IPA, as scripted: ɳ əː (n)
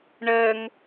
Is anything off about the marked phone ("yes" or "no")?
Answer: yes